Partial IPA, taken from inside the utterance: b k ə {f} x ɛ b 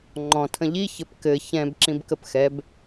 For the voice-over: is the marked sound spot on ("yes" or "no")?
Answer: no